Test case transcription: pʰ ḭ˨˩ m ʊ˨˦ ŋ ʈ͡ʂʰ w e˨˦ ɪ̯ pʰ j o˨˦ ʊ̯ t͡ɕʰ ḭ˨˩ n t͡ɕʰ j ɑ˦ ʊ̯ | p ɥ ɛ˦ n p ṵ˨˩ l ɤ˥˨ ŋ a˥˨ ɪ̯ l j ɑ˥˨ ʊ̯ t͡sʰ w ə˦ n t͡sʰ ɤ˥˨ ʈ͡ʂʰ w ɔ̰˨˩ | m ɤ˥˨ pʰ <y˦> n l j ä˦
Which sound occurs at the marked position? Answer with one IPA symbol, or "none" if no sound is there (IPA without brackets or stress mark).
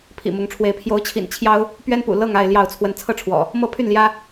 y˥˨